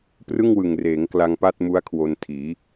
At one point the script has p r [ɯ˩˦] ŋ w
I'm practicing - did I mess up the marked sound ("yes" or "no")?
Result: yes